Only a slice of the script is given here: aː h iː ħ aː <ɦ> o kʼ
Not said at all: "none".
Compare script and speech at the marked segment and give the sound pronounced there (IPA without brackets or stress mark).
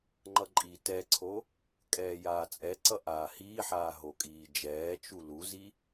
ɦ